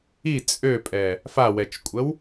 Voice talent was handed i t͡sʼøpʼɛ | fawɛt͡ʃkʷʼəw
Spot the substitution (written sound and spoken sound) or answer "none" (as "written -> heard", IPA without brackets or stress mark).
none